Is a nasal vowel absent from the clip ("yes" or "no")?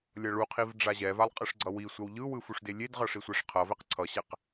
yes